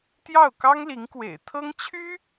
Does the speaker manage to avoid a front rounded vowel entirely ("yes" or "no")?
no